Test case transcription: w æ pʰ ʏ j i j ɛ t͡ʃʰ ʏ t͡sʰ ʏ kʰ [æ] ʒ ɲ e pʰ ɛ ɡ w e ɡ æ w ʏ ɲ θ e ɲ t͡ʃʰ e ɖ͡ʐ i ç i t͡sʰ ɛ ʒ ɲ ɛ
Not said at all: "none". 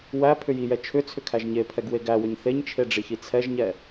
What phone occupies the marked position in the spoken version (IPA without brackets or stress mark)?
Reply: æ